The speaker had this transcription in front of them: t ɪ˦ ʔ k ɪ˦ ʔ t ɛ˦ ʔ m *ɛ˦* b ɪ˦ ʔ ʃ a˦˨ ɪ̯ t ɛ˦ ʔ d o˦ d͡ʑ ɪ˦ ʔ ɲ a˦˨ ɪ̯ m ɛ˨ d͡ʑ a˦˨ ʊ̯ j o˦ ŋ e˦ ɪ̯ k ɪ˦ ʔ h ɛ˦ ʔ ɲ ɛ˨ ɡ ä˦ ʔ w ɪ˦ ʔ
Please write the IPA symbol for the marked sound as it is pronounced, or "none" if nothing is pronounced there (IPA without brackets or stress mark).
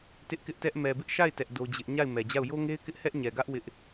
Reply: ɛ˨